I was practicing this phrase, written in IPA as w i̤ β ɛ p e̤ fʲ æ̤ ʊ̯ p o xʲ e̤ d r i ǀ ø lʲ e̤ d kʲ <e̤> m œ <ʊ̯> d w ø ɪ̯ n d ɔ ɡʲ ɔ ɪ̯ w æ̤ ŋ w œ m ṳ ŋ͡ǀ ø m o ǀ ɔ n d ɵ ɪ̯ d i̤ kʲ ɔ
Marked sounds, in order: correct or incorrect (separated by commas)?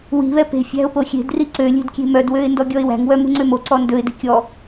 correct, incorrect